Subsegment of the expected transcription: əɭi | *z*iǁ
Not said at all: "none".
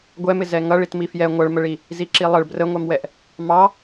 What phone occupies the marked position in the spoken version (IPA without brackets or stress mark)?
z